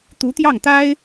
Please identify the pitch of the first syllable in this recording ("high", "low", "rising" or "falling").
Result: rising